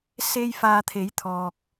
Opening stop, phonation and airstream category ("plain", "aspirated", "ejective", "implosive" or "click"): aspirated